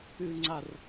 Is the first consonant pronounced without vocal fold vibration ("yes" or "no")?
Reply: yes